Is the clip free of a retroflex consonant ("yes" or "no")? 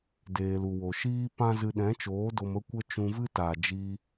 yes